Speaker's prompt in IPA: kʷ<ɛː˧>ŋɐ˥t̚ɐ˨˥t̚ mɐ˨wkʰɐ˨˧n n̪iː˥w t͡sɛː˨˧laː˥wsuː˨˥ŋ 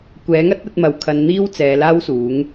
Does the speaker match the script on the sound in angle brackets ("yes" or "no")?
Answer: no